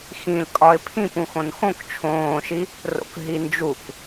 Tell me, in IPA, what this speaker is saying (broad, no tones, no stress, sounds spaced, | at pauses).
x ĩ l kʼ ɒ ɪ̯ pʰ ĩ p ũ x õ n x õ k t͡ʃʰ õː ʃ i | r o̰ k ɦ i n d͡ʒ u k